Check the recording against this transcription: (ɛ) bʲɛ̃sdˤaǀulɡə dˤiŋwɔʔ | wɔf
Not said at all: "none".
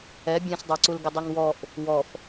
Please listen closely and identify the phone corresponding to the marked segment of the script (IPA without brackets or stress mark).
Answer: ɛ